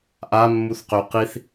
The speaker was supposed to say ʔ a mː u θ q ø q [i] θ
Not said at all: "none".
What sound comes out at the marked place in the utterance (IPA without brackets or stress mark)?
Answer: i